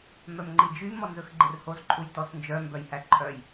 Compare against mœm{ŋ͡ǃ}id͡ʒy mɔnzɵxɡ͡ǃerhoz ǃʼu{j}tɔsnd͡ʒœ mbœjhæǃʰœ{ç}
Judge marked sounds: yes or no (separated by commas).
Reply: yes, yes, no